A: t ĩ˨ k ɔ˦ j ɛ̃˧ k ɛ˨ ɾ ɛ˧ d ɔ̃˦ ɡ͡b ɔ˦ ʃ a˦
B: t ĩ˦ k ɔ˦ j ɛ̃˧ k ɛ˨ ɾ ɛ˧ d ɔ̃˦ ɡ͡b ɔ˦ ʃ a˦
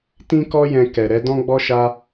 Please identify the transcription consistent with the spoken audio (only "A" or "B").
B